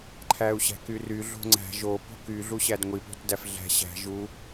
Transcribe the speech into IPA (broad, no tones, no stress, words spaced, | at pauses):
ǃʰæu̯ɕæ̤kyry ɮo̤ŋ͡ǀæ̤ ʒo po̤ky ɮuɕædŋʷi po̤tdæfɮæ̤ ɕæ̤ ʒu